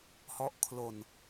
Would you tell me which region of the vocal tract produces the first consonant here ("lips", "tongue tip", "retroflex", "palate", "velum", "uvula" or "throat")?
throat